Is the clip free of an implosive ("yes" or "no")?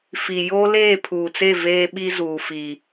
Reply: no